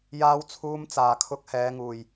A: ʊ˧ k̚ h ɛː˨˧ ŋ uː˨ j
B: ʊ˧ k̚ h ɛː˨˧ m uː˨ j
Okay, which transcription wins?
A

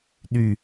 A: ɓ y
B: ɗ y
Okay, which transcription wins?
B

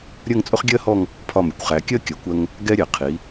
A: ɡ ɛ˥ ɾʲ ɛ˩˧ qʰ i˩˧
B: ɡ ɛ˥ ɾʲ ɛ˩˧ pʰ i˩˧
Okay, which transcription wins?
A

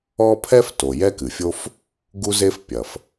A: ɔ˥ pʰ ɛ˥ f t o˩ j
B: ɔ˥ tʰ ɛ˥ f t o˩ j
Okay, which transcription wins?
A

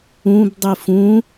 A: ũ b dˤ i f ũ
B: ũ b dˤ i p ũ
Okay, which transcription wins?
A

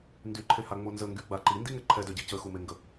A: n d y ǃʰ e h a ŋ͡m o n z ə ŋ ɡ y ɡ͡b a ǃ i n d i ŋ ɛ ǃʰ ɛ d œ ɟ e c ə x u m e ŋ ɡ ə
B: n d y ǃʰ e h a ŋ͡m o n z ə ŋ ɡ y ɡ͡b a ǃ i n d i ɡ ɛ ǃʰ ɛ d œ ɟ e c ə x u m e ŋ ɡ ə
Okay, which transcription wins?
A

